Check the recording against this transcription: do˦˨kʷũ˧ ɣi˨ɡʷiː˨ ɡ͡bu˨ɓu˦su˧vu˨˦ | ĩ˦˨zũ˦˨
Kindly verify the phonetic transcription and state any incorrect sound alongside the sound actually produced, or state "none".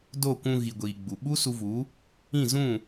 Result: none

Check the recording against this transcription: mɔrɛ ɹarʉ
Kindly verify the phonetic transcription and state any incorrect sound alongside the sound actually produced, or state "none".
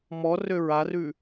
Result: ɛ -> ø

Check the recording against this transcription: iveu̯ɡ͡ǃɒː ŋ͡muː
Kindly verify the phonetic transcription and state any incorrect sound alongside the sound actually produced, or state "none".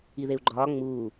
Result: v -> ð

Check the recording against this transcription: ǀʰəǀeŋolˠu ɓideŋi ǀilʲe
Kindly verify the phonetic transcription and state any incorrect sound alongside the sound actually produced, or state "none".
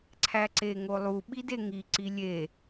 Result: ə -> æ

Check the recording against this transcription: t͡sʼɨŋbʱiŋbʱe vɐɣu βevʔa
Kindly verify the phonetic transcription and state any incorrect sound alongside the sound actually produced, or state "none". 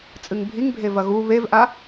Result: none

